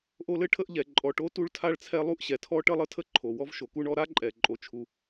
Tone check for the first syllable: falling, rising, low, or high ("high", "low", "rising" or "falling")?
high